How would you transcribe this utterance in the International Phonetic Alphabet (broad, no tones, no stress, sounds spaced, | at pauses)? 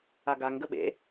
a ɡ a ŋ ɡ ə ɓ ḛ